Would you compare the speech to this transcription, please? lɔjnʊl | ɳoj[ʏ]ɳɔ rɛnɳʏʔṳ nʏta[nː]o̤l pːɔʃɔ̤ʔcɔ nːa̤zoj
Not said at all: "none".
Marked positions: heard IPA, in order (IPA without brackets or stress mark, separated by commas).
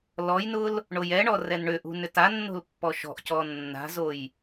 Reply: ɛ, nː